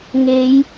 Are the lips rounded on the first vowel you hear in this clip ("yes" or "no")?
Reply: no